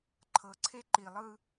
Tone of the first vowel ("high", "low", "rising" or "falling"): low